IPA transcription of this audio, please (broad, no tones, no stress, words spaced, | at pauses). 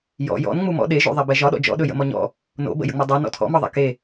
jɔ̰ jɔ̰n ŋ͡mumɔ̰ ɗeʒṵðˤɛbɛ ʒɒɗɔ̰ d͡ʒɔ̰ɗɵ jə̰mɔɲɔ̰ | no̰ bə̰jə̰ŋ͡mɵ dˤø nɔ̰tʰɔ̰mɒðˤɛ̰ ke